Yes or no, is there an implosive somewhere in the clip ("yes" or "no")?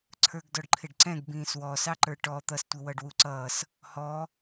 no